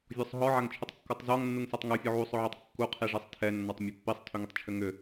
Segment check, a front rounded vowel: present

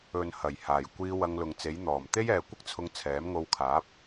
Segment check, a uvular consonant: absent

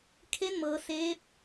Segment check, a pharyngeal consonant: absent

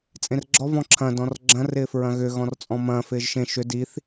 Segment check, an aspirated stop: present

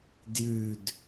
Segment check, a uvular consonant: absent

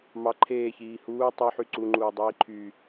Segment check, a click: present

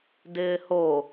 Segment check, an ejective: absent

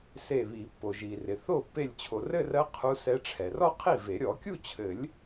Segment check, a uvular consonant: present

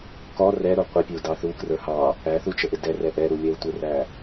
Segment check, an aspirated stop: absent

